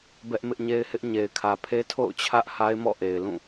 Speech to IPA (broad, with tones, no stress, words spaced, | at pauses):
bɛ˦ʔmɪ˦ʔɲe˦ɪ̯hɪ˦ʔ ɲe˨ɪ̯kʰä˨pʰe˦ tʰo̰˦˨ʊ̯t͡ɕʰä˦ʔ ha˦ɪ̯mɔ̰˦˨ʔe˨ɪ̯ lũ˦˨